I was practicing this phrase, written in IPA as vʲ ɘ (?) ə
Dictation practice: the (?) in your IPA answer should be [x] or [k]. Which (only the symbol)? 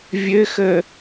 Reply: x